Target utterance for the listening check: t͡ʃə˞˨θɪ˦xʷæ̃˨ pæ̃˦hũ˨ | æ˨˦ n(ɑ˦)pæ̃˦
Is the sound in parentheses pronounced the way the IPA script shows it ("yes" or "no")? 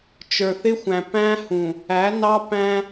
yes